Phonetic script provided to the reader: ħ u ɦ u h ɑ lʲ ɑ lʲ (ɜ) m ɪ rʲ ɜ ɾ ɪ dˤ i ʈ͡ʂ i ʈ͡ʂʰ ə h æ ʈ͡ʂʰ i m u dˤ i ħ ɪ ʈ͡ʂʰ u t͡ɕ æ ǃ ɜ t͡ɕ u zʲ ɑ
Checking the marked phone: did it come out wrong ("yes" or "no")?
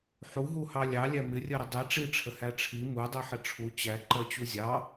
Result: yes